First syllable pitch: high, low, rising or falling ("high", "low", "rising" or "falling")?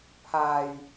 low